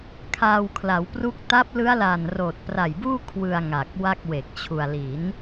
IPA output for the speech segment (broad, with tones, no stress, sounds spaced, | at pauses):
kʰ aː˧ w kʰ l a˩˦ w p r u˦˥ k̚ t a˦˥ p̚ l ɯ˦˥ a̯ l a˨˩ n r oː˨˩ t̚ p r a˨˩ j b uː˥˩ kʰ w ɯ˧ a̯ ŋ a˨˩ k̚ w a˥˩ k̚ w e˨˩ k̚ t͡ɕʰ u˧ a̯ l i˩˦ n